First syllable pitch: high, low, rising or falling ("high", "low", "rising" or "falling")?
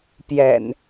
low